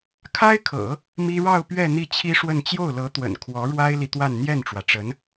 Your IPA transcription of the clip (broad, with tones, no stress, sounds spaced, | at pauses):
kʰ a˥ ɪ̯ kʰ ɤ̰˨˩˦ | m i˥ ɻ ɑ˥˧ ʊ̯ p ɥ ɛ˥˧ n̪ i˥˩ t͡ɕʰ i˥ ʂ w ə˥˧ n t͡ɕ j o˥˩ ʊ̯ l ɤ˧˥ t̪ w ə̰˨˩ n kʰ w ɔ˧˥ ɻ w a˥ ɪ̯ l i˨ t̪ w a˥˧ n n̪ j ɛ˥˩ n ʈ͡ʂ w ä˩ ʈ͡ʂ ə˧˥ n